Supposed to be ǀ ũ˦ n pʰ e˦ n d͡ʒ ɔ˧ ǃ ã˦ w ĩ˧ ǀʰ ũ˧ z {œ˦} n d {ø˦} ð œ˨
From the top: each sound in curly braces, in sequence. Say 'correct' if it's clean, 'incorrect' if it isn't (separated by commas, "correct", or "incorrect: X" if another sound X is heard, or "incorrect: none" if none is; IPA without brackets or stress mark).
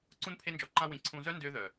correct, correct